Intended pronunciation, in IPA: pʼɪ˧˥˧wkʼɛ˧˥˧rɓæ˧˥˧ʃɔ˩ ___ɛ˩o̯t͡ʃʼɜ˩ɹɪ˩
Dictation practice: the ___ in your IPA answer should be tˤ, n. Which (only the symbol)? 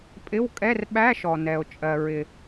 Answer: n